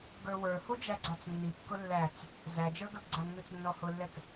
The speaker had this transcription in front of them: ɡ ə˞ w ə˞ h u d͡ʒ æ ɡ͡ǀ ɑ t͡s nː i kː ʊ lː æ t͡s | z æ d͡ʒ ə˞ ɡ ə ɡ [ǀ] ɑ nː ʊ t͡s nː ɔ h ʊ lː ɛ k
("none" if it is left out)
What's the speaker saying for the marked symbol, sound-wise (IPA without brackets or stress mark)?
ɡ͡ǀ